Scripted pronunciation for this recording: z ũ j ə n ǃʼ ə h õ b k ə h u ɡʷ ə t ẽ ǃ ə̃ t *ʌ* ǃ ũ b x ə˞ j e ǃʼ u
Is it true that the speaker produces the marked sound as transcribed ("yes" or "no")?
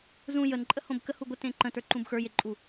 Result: no